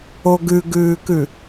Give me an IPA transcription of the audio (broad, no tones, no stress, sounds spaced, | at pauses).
o ɡ ʉ ɡ ʉː k ʉ